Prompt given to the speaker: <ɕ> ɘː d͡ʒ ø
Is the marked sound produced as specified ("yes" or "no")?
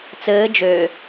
no